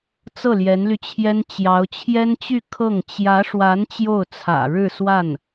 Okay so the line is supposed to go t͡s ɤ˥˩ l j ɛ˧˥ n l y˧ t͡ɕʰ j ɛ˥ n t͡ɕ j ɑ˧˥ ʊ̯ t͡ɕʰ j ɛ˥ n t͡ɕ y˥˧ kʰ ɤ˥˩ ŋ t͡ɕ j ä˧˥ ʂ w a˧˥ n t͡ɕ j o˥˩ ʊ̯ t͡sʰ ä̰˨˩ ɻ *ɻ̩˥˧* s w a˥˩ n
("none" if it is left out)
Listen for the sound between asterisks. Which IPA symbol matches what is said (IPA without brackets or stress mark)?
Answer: ɻ̩˥˧